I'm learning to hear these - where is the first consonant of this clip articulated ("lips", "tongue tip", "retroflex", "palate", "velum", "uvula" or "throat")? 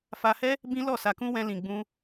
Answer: lips